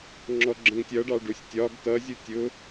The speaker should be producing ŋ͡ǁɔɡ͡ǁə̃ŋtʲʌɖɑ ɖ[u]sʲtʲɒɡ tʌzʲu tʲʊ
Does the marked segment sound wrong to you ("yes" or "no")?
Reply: no